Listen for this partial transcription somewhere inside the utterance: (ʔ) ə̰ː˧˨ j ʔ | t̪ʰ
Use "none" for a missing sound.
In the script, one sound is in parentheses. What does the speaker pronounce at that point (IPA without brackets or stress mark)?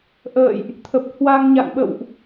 ʔ